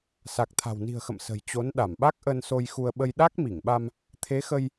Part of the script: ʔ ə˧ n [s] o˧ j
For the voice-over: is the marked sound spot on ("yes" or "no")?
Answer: yes